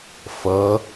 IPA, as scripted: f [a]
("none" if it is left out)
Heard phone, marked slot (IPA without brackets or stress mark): ʌ